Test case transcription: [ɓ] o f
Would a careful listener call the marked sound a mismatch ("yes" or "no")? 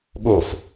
yes